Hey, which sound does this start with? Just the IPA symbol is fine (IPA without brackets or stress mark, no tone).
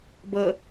b